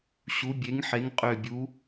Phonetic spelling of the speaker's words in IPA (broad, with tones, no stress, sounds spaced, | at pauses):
ɕ u˩˧ bʲ e˩˧ ŋ ħ e˩˧ ŋ qʼ ø˨˩ bʲ u˩˧